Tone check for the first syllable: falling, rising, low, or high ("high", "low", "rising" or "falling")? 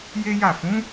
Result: high